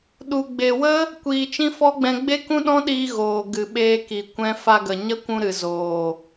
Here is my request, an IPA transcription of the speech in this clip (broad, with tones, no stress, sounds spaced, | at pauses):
ɗ u˨ ɡ͡b e˨ w ə˦ | kʷ iː˨ t͡ʃ ĩ˦ f ɔ˦ ɡ͡b ɛ̃˧ ɡ͡b e˦ k ũ˦ ɗ ɔ̃˦ ɗ iː˧ ɣ oː˨ ɡ ɨ˨ ɓ eː˧ k i˨ kʷ ɛ̃˧ f a˧ ɡ ə˨ ɲ ə˦ kʷ ũ˧ ɾ ɨ˨ z oː˨